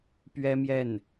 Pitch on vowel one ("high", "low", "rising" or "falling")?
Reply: high